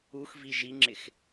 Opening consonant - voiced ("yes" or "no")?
no